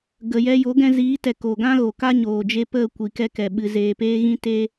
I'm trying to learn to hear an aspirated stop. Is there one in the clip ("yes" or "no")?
no